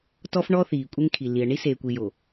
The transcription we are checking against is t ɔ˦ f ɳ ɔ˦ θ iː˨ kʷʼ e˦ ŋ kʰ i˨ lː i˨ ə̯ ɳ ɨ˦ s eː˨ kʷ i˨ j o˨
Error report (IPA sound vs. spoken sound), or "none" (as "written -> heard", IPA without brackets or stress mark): ɨ˦ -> i˦